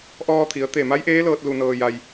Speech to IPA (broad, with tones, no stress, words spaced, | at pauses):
ʔɔː˧t̪ʰi˩˧ə̯t̪e˧˩ ma˧˥jʔeː˧˥lɤː˧t̚ lu˧nɤː˧ ja˧j